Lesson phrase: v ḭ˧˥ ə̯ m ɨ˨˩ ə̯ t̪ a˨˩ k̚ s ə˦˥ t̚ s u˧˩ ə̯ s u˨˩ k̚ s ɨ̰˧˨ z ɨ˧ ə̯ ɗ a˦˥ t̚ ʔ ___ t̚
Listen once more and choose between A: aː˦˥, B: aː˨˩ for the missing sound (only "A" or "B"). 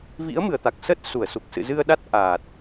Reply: B